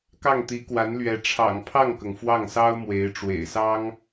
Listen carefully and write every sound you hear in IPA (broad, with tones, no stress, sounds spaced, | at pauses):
k ɑ˥˩ ŋ t̪ i˧˥ k w a˧˥ n l ɥ ɛ˧˥ ʈ͡ʂʰ ɑ̰˨˩ ŋ pʰ ɑ˥˩ ŋ k ɤ˩ ŋ f w ɑ˥˩ ŋ s ɑ˥ ʊ̯ m w e˧˥ ɪ̯ ʈ͡ʂ w ḛ˨˩ ɪ̯ s ɑ˥ ŋ